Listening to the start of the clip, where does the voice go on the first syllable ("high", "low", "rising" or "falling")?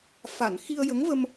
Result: low